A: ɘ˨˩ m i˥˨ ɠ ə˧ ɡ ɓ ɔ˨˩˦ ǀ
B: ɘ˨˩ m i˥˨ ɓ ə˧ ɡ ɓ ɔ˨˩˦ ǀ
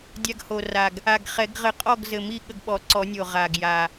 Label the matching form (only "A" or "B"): A